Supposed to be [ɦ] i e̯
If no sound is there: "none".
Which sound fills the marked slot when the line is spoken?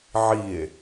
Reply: ʕ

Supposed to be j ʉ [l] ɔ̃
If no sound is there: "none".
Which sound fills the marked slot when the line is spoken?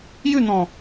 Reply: n̪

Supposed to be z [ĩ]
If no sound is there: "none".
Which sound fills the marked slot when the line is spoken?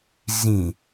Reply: ĩ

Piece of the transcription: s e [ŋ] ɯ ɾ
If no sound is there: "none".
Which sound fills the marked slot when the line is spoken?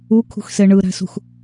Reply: ɳ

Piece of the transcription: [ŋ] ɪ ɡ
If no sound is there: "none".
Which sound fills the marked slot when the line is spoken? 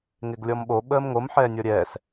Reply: ŋ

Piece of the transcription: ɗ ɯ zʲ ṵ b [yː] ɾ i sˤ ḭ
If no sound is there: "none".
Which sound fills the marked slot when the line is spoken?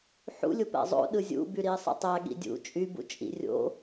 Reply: y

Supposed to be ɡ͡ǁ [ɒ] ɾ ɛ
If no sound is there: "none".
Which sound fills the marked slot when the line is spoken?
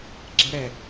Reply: ʌ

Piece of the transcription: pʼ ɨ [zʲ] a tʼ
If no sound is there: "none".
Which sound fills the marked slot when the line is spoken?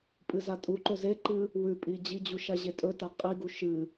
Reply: z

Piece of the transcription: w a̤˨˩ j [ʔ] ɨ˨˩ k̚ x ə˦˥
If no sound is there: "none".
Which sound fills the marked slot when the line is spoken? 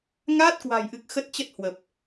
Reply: ʔ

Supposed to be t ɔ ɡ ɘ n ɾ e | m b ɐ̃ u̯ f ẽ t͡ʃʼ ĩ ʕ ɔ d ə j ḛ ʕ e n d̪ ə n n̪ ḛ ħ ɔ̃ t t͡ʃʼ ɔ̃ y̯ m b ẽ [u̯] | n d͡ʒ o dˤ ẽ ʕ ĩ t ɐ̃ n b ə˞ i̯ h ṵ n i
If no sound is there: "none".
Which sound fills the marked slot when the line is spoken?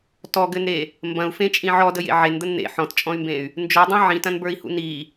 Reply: y̯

